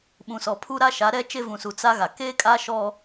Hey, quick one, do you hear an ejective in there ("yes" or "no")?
yes